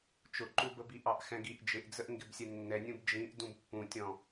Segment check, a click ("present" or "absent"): present